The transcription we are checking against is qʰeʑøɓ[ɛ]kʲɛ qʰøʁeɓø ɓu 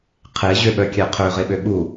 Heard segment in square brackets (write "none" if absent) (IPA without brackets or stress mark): œ